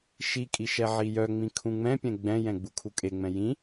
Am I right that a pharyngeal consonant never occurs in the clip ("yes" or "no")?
no